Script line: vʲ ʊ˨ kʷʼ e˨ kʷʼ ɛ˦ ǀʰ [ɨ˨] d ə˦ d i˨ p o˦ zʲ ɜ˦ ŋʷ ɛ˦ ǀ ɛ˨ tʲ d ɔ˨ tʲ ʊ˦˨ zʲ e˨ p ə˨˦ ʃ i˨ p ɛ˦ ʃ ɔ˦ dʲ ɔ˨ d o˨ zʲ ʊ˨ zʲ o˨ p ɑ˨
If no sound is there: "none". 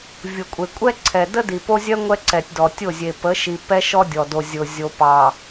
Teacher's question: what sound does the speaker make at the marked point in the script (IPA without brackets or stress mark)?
ɛ˨